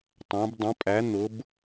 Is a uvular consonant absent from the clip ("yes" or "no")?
yes